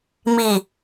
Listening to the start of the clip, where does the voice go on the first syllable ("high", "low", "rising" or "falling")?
low